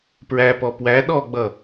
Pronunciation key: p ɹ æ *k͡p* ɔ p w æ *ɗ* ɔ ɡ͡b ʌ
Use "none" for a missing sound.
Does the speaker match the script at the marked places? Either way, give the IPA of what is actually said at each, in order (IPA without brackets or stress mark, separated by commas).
p, ɗ